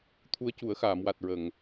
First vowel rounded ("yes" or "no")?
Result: yes